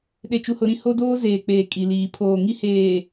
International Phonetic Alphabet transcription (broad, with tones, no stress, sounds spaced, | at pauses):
ɗ e˨ t͡ʃ u˨ h ʊ˨ ɾ ĩ˦ h o˦ d oː˦ z eː˨ k͡p eː˨ kʼ i˨ l iː˨ pʰ oː˨ ŋ i˦ h eː˨